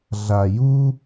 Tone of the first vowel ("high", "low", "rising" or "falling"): low